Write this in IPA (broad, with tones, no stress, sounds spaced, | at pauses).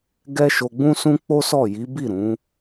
ɡ ɛ˦ ʃ o˧ ɡ͡b ũ˦ s ũ˦ k͡p o˦ s ɔ˦˨ j i˨˦ b i˦˨ ɾ ũ˨˦